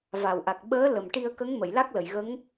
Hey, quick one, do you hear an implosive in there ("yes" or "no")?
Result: yes